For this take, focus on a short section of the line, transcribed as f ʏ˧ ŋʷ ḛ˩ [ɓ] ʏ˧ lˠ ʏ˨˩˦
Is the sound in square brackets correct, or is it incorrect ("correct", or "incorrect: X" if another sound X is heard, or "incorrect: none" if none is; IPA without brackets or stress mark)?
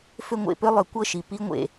incorrect: p